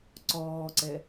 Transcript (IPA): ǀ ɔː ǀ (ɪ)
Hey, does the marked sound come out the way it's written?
no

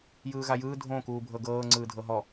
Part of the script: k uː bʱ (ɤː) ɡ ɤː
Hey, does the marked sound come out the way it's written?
no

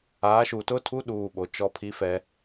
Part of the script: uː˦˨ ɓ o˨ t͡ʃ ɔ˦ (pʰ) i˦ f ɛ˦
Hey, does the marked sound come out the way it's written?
yes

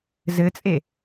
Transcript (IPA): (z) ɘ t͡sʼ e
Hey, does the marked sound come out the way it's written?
yes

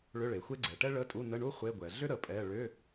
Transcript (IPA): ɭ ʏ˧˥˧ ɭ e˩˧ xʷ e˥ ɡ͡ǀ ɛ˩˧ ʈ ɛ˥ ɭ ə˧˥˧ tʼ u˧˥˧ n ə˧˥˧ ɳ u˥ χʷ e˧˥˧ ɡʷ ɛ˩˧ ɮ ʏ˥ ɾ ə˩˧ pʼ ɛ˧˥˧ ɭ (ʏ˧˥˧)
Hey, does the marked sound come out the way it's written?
yes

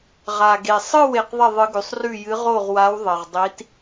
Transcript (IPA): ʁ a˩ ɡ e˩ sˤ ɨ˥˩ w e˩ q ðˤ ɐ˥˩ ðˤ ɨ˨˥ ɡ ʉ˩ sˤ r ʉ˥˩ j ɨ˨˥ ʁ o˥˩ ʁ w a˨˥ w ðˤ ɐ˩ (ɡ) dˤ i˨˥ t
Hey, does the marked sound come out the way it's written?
no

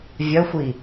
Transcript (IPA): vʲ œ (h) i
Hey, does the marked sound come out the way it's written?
no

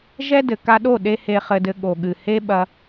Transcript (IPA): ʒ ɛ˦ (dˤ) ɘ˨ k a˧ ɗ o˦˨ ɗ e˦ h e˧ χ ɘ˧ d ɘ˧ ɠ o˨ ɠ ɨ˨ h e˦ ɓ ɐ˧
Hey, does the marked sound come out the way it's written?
no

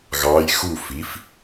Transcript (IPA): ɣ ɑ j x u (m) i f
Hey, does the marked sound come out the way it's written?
no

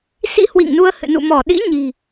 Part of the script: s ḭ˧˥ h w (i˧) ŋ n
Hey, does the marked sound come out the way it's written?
no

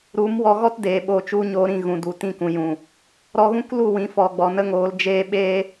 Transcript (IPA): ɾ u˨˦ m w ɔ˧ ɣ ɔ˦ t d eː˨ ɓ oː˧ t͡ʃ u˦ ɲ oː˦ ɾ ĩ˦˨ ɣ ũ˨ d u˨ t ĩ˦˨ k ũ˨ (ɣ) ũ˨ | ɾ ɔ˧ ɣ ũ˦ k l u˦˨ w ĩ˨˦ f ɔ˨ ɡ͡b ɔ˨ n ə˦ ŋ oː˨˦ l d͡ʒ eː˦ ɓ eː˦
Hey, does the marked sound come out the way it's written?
no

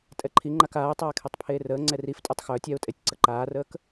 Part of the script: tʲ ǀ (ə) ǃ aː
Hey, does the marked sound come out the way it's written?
yes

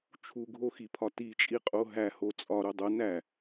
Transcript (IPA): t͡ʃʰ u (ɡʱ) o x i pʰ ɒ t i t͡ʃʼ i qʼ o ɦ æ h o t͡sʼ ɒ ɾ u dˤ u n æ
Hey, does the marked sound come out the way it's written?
yes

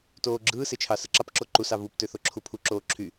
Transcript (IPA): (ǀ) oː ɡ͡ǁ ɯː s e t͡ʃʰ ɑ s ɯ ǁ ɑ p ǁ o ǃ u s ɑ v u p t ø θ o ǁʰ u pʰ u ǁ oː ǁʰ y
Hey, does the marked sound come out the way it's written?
no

